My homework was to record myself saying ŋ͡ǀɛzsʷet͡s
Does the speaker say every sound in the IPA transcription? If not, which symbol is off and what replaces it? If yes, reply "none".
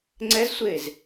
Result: t͡s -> z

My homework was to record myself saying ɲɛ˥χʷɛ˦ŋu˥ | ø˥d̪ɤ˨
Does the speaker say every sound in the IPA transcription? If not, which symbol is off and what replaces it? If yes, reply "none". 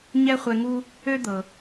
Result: none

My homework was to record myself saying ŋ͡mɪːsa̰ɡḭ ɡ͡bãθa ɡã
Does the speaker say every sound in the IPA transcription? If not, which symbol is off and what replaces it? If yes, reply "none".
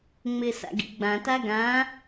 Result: θ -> t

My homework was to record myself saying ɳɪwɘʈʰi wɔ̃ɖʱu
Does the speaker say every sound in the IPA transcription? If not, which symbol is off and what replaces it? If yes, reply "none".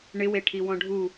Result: ɘ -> e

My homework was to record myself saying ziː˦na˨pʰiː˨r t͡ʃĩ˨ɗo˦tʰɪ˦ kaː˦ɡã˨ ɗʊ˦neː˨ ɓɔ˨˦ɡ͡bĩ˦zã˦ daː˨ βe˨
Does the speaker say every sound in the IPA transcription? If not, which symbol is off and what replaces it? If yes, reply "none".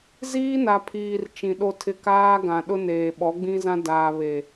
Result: none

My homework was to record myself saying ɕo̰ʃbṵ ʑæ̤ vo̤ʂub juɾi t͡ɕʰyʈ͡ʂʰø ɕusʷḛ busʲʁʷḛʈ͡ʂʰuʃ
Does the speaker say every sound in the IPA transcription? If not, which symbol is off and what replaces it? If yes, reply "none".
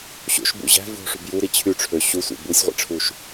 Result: none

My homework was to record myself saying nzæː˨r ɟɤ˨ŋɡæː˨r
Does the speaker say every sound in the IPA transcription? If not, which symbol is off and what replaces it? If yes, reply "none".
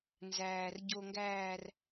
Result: ɤ˨ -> o˨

